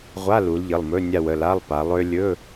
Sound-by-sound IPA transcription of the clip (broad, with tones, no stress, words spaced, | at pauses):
ʁʷa˧˥˧lu˩˧l ʎə˩˧˩lˠmɵ˧˥˧ nʲa˦˨wə˩˧˩la˧˥˧lˠ pa˩˧lˠø˥ lʲɵ˧˥˧